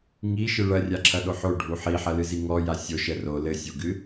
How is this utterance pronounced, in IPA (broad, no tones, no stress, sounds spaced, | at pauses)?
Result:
ŋ i ʃ ɨ ɭ ɐ rʲ a ǁʰ ɐ ɗ o ħ o ɖʱ u ħ i ħ ɐ l ɨ z i ŋ ɔ j a sʲ o ʃ ɛ r o l ɘ sʲ o ɡ ɨ